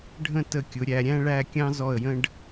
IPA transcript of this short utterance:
ɖʱ ə̃˥˧ t ə˧ kʲ ʊ˩˧ ɾʲ æ˩˧ ɾʲ æ̃˥ ɭ æ˥˧ kʲ ɑ̃˥ z ɔ˧˩ ə̯ j ə̃˧ ɖ

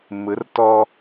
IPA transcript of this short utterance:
m ɯ˨˦ r t ɔː˦

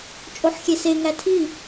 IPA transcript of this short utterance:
t͡ʃʼ o ħ xʲ e s e ŋ æ tʰ i

